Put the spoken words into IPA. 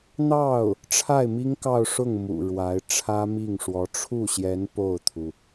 n̪ ɑ˥˩ ʊ̯ | ʈ͡ʂʰ a˥˩ ɪ̯ m i˥ ŋ k ɑ˥˧ ʊ̯ ʂ ʊ˥˩ ŋ m ṵ˨˩ ɻ w a˧˥ ɪ̯ ʈ͡ʂʰ ä˥ m i˥˩ ŋ ʂ w ɔ˧˥ ʈ͡ʂʰ u˥˩ ɕ j ɛ˧˥ n p o˥˩ ʊ̯ t̪ʰ u˩

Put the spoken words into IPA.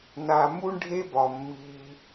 n a˩ m u˥ ɳ ɖʱ e˥ b ɒ˩ mː iː˨

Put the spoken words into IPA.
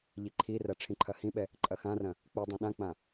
ʎ i ǃʰ i r ɐ ʈ͡ʂʰ ĩ ǃʰ ɐ h ĩ ɓ ɛ | ǃʼ ɐ x ã r ɐ̃ | k͡p u dˤ õ ɗ ã k͡p ã

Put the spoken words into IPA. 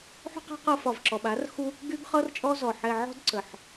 ħ o̤˦ q ɛ̤˦ q ɤ˧ f ɒ˨ v ǁ ɔ˨ ɓ a˨˦ r x u˦ | ɡ y˦ ɡ χ ɤ˦ r t͡ʃʼ ɔ˦ z ɔ˨ ħ ɛ˧ ʕ ɔ̤˦ d ǀ ə˨ ħ

